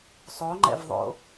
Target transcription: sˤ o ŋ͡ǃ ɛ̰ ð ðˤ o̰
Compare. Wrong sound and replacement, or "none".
ð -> v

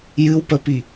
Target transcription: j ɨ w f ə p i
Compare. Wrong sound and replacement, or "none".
f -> p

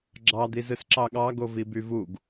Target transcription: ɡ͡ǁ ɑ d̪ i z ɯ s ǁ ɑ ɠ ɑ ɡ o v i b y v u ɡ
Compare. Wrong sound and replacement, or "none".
none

